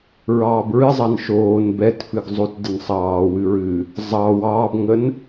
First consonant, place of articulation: alveolar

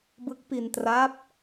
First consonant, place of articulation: labial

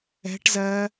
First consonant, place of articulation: retroflex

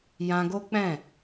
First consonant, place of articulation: palatal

